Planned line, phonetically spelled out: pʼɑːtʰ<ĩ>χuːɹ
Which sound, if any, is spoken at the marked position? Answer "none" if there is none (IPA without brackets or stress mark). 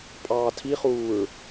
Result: i